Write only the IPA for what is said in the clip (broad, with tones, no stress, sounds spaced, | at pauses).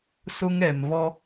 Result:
s ʊ˦ ŋ ɛ˨ m v ɔ˦